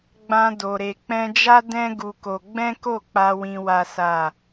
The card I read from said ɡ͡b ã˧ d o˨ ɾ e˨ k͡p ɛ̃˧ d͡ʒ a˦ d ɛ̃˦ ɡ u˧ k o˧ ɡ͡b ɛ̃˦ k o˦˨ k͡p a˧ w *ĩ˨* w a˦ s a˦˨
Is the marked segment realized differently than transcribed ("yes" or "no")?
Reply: yes